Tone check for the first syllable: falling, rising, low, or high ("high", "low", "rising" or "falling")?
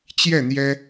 falling